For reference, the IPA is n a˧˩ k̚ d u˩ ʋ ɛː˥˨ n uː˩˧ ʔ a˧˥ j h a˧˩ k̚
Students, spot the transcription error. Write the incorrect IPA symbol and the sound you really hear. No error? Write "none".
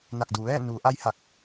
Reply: none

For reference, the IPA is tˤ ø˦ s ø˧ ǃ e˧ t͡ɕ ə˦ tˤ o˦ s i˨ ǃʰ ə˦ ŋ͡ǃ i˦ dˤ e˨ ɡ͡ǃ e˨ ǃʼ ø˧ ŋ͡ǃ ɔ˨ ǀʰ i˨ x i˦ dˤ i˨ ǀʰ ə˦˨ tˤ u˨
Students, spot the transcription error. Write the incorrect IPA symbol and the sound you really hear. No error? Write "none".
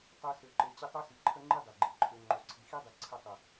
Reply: ɔ˨ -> o˨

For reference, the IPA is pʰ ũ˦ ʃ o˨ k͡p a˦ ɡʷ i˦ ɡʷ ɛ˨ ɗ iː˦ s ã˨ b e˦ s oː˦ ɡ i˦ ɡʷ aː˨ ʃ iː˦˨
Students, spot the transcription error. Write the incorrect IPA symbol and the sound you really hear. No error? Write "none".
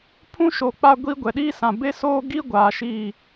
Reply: none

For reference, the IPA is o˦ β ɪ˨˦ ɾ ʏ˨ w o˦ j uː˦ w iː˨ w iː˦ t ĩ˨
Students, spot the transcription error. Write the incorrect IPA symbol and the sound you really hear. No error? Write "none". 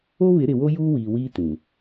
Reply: ʏ˨ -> ɪ˨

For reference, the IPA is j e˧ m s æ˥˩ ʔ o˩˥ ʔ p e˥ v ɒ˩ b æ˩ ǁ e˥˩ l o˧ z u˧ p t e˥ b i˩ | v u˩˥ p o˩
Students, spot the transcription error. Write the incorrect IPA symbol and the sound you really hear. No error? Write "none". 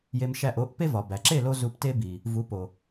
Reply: s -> ʃ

